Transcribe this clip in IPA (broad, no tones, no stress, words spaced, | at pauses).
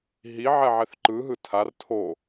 ɦi ʕɛʕɛθǃɯ ɦɯtʰar tʰo